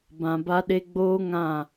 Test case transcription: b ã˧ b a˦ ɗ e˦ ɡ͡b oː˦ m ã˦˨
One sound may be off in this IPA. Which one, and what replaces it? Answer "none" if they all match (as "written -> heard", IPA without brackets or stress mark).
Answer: m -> ŋ